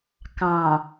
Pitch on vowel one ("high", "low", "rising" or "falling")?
low